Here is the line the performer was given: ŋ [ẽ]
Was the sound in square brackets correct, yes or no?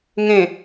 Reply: yes